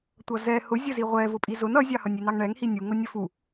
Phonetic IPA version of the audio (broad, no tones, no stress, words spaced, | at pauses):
tʷʌzɛ hʊzʲəzi ʁʷɛ vʊpʼizʊn ʌzʲɑhʌnʲ inɑŋɳɛŋhi nʲuŋʊ nʲəfu